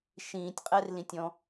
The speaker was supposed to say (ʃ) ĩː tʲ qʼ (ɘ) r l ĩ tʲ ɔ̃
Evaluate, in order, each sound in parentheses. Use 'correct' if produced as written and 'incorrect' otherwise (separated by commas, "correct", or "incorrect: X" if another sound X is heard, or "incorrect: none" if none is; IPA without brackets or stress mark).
correct, incorrect: ɛ